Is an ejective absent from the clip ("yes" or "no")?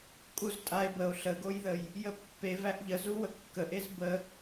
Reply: no